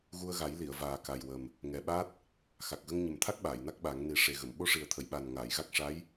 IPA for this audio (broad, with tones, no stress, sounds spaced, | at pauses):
ɣ u˧ ə̯ ɣ a˨˩˦ j l i˨˩˨ ə̯ v aː˨˩ k a˨˩ j w ə˨˩ m | ŋ ɛ˨˩ ɓ a˦˥ t̚ | x a˨˩ k̚ ɣ ə˧ ŋ ɲ ə˨˩ m t̪ʰ a˦˥ k̚ ɓ aː˨˩˨ j n a˦˥ k̚ ɓ a˨˩˦ ŋ n i˨˩˦ ʂ e˨˩ ɣ ə˨˩˨ m ɓ o˧˥ ʂ i˨˩ ə̯ t̪ʰ ə˨˩˨ j ɓ a˨˩ n ŋ aː˨˩˨ j ɣ a˦˥ k̚ ʂ a˧˥ j